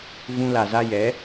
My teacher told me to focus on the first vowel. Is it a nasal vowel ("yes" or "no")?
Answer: yes